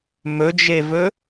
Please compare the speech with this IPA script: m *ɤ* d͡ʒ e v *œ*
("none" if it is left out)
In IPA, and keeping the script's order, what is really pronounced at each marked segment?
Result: ɵ, ɵ

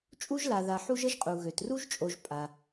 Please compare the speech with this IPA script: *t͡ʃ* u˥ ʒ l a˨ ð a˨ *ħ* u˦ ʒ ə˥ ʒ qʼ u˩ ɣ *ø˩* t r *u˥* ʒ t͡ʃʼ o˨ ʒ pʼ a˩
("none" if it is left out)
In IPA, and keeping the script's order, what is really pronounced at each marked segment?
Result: t͡ʃʼ, ħ, ø˩, u˥

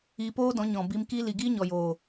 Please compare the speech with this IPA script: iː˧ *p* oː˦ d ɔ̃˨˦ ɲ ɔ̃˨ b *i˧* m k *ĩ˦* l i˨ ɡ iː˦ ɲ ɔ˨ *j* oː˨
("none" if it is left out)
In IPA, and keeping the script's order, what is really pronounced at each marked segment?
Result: p, i˧, i˦, j

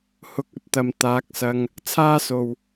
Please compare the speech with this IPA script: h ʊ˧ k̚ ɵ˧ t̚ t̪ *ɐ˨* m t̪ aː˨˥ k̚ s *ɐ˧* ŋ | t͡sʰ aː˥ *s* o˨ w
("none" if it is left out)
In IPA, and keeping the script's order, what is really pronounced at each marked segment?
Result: ɐ˨, ɐ˧, s

